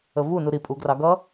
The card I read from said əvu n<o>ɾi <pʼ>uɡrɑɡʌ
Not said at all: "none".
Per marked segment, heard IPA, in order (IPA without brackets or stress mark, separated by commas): u, pʼ